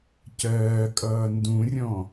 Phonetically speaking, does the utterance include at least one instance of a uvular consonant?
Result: no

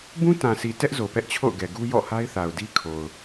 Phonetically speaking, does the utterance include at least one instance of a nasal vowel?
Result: yes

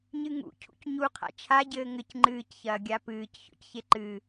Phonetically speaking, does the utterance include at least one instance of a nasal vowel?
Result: no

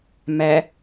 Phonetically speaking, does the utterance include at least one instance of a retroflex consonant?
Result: no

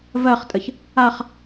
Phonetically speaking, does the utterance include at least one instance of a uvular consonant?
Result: yes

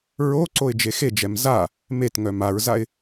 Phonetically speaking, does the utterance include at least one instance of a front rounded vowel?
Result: yes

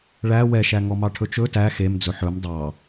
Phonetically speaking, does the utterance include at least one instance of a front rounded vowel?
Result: no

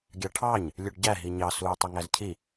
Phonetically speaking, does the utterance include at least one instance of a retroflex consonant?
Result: yes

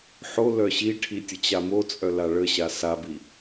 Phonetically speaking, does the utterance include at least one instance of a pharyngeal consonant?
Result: yes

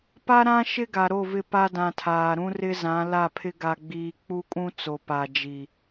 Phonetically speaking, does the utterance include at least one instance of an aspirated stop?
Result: yes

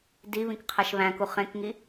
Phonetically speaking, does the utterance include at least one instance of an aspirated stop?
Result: yes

